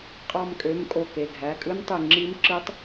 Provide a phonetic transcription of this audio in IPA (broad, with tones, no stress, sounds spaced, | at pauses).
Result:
qʼ ɑ˧˩ m kʼ ø˩˧˩ m kʼ o˧˩ k e˩˧˩ ɡʱ æ˩˧˩ kʼ ɯ˦˥ n tˤ ɯ˧˩ ŋ͡ǁ i˦˥ m ǁ ɯ˦˥ tˤ